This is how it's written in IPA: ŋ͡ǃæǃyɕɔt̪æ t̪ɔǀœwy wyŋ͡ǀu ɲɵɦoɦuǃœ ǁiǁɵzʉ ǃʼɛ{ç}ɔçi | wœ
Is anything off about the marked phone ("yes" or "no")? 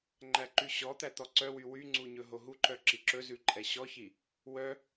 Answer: yes